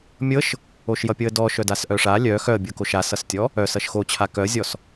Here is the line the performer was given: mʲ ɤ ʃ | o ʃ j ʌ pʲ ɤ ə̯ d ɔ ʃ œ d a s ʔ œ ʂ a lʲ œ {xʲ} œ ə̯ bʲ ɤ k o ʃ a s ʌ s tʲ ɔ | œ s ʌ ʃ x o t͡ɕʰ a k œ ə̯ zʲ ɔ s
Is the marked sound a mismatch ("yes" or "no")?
yes